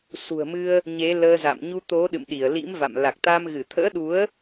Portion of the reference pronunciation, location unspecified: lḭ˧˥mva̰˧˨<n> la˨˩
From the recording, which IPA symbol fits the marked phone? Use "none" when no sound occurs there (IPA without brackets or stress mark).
m